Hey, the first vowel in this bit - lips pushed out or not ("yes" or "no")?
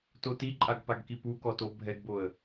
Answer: yes